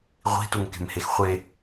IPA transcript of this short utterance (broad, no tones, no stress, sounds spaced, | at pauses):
ʁʷ i̤ t u ŋ k e̤ m h e x χʷ e